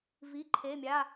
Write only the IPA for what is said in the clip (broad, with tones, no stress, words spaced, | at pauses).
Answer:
vi˩˧˩ǃʰe˩˧˩mʲa˩˧˩